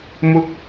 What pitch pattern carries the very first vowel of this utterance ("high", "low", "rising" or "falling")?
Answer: low